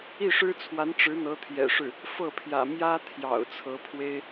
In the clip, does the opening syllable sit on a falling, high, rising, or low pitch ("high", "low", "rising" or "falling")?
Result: falling